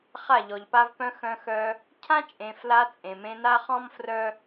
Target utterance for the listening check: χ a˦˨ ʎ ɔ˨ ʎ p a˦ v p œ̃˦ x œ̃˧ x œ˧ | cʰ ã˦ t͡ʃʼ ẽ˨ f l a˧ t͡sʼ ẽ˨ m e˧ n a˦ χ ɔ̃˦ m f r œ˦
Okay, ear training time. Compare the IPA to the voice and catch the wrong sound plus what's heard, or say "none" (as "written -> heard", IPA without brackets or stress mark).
e˧ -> ẽ˧